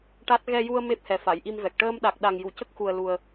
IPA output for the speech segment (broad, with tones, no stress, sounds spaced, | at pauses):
ʈ a˦˥ t̚ ɣ ɛ˧ j u˧ ə̯ m e˦˥ p̚ h ɛ˨˩ f a˨˩˨ j ʔ i˧ m v ɛ˨˩ k̚ ʈ əː˧ m ɗ a˨˩ k̚ ɗ a˨˩ ŋ j u˨˩˨ c ə˦˥ k̚ x u˨˩ ə̯ l u˨˩ ə̯